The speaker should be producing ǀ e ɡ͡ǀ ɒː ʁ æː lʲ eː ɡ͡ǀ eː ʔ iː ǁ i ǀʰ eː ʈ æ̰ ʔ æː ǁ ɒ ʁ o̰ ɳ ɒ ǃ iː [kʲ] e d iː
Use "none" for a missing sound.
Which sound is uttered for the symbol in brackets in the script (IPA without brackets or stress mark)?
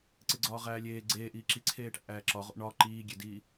ɡʲ